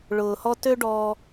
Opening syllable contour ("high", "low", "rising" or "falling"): low